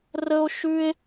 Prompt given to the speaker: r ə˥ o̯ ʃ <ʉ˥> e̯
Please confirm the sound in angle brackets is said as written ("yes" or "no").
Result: yes